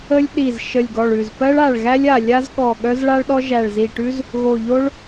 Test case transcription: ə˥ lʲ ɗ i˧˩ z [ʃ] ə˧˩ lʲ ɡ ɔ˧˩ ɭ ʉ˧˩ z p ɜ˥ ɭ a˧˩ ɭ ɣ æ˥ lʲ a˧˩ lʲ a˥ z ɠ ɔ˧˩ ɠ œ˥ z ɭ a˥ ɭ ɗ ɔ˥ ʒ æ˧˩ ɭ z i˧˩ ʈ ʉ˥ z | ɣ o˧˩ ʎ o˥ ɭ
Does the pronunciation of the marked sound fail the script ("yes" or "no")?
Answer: no